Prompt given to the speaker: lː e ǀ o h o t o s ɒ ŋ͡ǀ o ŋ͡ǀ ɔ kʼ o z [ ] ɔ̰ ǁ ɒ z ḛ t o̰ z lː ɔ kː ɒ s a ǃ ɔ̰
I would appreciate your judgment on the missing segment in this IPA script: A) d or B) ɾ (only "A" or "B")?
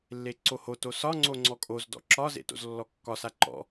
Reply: A